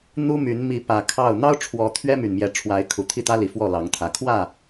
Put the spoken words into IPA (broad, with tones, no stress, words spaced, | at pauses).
n̪u˦my˨˦n mi˨˦pä˨˩ kʰɑ˥˨ʊ̯ n̪ɑ˦ʊ̯ʈ͡ʂʰwɔ˨˦ t̪ʰɥɛ˦my˨˩nmjɛ˨˦ ʈ͡ʂʰwa˨˦ɪ̯kʰu˨˩ t̪ʰi˥˨t̪ä˦li˨˩ fwɔ˥˨lɑ˨˦ŋt̪ʰä˨˦ kʰwä˥˨